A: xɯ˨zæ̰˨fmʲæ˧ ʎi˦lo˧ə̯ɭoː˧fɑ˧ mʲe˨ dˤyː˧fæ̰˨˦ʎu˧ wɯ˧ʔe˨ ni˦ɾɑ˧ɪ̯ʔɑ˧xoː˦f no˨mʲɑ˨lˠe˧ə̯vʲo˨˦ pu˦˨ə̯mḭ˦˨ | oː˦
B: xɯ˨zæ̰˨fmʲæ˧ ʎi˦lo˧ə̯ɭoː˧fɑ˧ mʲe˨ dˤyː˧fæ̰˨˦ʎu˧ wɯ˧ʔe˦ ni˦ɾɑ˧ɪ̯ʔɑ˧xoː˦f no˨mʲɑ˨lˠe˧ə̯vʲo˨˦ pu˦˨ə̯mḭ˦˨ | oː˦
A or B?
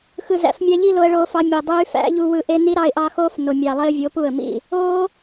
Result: B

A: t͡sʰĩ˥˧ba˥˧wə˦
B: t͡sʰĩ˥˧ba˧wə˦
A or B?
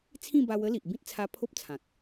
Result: B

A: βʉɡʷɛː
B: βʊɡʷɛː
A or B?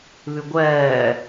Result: A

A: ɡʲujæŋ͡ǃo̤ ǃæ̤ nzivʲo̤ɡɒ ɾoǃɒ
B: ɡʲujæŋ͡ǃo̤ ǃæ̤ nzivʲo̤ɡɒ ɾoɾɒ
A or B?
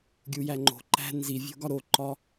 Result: A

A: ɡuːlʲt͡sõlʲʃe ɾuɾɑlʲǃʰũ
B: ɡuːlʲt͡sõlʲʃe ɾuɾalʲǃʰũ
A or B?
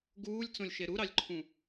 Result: A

